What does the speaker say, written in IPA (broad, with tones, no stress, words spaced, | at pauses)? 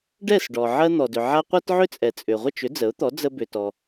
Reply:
ɖɛ˥˩sɖɔ˩ ʕɜ˧n̪ɔ˩dʏ˩ʕa˧ qʷɜ˥tʕʏ˥t͡sʼɛ˩t͡sʼʏ˩ ʁʷə˥˩t͡ʃʏ˩˥ d͡zə˩˥ʊ̯t̪ɔ˩˥ d͡zə˧bʏ˩tɔ˩